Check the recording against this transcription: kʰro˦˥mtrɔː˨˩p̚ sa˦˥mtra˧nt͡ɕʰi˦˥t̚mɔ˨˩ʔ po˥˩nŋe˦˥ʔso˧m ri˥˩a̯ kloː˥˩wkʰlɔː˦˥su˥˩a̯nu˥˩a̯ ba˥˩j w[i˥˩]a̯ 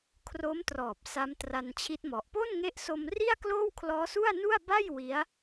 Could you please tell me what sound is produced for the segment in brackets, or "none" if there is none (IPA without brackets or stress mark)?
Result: i˦˥